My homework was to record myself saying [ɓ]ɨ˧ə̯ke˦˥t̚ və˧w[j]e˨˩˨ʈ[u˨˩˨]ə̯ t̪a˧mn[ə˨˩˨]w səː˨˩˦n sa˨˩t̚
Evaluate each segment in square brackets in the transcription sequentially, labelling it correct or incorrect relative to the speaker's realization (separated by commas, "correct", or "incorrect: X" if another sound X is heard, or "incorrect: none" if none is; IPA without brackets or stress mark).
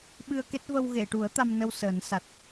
correct, incorrect: ɣ, incorrect: u˨˩˦, incorrect: ə˧